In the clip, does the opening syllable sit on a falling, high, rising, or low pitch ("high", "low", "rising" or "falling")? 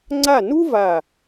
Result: falling